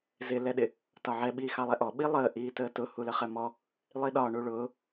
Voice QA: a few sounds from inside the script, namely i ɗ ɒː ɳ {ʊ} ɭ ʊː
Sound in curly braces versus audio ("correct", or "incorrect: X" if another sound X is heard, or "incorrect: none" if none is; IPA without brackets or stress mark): incorrect: u